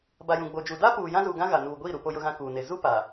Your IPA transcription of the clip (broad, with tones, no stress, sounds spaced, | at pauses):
b a˨ j ũ˨ ɡ͡b o˨ d͡ʒ u˨ d a˦ p uː˨ j ã˦ z uː˨ ɡ ã˦ ɣ a˨ n uː˨ ɡʷ iː˦˨ ɾ u˨ p o˦ j ʊ˦ ɣ ã˦ k uː˨ n e˨ z u˦ p a˨